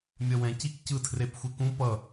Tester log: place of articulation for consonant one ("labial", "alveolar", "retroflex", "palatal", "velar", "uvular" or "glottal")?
labial